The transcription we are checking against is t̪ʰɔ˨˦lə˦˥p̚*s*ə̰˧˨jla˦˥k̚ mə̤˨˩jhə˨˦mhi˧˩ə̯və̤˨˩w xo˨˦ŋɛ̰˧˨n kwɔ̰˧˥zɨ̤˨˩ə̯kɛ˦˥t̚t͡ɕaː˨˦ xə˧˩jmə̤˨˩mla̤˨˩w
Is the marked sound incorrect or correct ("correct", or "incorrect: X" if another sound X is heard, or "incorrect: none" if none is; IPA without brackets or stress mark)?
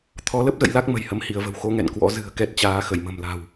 incorrect: z